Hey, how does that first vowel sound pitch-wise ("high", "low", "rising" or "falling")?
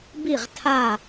falling